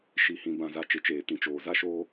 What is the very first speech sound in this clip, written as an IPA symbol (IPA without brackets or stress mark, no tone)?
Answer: ʃ